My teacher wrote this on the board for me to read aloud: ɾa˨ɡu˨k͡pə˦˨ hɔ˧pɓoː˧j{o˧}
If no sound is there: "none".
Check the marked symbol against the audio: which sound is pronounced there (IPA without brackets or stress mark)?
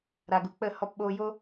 o˦